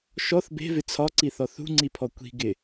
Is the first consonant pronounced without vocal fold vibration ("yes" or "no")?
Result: yes